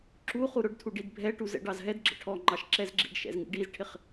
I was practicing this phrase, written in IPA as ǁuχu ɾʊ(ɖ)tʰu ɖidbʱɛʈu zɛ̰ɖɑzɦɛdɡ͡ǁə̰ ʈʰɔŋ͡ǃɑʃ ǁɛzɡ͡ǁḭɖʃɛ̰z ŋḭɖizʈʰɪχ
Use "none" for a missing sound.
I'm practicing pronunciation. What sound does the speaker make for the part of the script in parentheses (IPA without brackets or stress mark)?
ɖ